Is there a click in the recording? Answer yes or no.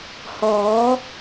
no